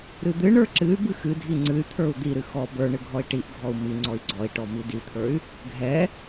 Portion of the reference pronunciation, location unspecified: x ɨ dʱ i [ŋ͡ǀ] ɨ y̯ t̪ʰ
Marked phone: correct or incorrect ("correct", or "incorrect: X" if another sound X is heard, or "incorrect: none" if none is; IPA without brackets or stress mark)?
correct